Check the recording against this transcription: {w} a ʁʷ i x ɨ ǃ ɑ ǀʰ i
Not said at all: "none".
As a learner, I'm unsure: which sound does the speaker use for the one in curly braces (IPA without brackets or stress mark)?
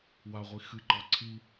w